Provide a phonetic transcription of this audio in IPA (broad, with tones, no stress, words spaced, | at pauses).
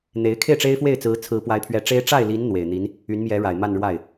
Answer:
n̪e˧˥ɪ̯ kʰe˥˩ɪ̯ʈ͡ʂe˥ɪ̯fwe˥˩ɪ̯t͡sɹ̩˧˥ t͡sʰɹ̩˧˥pwa˧˥ɪ̯pʰɥɛ˧˥ʈ͡ʂe˥ɪ̯ ʈ͡ʂa˥˩ɪ̯li˧˥n n̪we˨˩ɪ̯ n̪i˧˥n | y˧˥nmjɛ˧˥ ɻa˨˩ɪ̯ma˥˧nɻwa˥˩ɪ̯